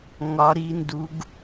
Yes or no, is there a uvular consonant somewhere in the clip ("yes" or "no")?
no